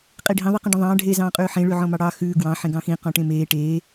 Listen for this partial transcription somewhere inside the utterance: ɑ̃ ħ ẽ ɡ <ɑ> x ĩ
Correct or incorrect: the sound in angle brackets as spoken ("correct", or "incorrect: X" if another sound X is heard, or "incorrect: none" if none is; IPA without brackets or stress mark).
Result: incorrect: ɑ̃